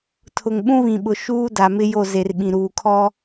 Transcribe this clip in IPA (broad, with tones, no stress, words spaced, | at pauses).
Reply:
tʰʊ˨ŋɓũ˦βĩ˨ɓʊ˨ ʃuː˦da˨mɪ˦ jo˦˨ze˨rɓĩ˨ ɾuː˨kʰɔ˦